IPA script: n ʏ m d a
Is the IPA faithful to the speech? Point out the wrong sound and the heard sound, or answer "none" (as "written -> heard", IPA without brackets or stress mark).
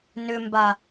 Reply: d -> b